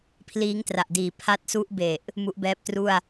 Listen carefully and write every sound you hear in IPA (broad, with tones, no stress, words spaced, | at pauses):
pʰliː˦˥ŋtra˨˩ʔdiː˨˩ pʰa˦˥t̚su˦˥ʔbe˨˩ʔ | mu˦˥ʔbɛː˦˥p̚tru˥˩a̯